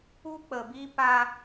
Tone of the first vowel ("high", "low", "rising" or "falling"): high